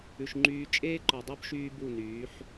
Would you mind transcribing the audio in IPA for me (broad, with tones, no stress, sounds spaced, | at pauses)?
ʉ˨ ʃ ŋ͡ǃ yː˧ t͡ʃʼ eː˦ ǃ ɔ˨ dˤ o˦ b ʃ yː˦ b u˦˨ n yː˨˦ ħ